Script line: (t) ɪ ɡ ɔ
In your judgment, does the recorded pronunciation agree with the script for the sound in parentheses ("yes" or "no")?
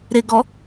no